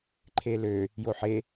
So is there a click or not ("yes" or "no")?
yes